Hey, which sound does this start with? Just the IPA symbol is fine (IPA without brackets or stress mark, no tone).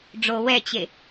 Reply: ɖ͡ʐ